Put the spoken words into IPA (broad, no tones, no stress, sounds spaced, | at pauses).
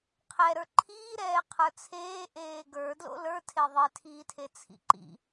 qʰ ɛ ɾ ə˞ ǃʰ iː ɾ ɛː qʰ ə˞ t͡sʰ eː ʔ eː ɡ ə˞ d l o̰ l ə˞ tʰ e ðˤ e tʰ iː tʰ e t͡sʰ ḭ ǃ ḭ